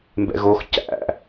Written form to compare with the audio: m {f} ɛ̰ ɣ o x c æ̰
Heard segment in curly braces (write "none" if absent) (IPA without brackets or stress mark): b